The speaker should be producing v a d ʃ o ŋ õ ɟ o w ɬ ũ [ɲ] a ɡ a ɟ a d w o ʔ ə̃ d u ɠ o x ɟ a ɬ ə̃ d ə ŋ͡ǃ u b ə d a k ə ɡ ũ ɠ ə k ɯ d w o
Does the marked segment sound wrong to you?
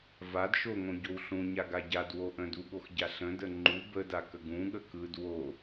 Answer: no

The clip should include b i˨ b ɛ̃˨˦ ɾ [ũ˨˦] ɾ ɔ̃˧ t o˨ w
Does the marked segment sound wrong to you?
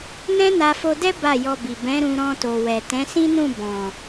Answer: yes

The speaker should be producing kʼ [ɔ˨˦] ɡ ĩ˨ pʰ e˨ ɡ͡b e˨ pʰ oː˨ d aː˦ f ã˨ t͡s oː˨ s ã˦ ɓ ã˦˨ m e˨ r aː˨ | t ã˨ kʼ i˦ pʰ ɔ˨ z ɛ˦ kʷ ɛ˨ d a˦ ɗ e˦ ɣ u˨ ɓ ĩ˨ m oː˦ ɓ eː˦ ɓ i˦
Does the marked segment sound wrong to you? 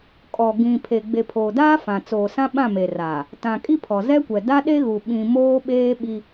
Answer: yes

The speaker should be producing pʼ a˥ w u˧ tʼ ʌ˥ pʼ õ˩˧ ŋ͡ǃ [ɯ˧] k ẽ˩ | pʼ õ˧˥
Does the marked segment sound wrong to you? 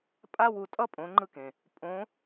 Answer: no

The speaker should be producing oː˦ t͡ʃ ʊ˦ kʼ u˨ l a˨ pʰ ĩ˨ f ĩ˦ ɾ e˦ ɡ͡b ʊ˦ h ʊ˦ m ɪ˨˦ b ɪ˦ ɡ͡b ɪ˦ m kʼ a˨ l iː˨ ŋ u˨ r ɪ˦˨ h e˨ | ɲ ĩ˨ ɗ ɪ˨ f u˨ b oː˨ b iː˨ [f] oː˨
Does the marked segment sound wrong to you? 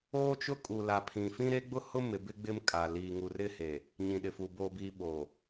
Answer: yes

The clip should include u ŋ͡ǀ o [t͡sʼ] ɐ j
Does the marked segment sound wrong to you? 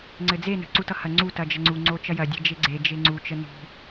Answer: yes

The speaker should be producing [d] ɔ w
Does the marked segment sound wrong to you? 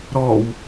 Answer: yes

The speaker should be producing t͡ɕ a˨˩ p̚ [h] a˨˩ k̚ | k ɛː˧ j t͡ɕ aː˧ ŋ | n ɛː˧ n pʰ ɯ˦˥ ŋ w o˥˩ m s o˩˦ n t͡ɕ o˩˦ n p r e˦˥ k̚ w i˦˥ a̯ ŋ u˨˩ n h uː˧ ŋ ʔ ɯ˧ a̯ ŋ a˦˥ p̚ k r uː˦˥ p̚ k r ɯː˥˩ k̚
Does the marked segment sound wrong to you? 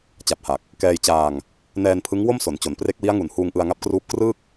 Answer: no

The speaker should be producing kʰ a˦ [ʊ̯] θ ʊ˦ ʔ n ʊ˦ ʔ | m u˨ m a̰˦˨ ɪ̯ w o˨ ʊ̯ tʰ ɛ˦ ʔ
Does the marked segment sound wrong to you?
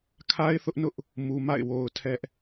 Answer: yes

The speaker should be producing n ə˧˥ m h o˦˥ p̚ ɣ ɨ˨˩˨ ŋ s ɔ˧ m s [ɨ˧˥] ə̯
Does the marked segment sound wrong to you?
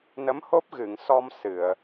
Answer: yes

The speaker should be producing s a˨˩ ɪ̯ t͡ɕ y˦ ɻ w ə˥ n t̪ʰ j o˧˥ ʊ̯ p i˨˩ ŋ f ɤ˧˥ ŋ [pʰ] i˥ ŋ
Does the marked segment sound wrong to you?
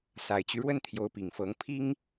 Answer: no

